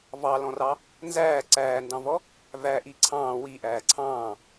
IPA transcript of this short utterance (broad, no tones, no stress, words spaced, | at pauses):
vɑlɔ̃rɑ | nzæː ǀæːndɑ̃vɔ | væʔi ǀʰɑ̃ː wiʔæː ǀʰɑ̃ː